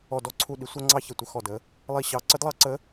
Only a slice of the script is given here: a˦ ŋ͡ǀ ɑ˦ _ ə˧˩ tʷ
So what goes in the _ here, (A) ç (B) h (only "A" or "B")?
A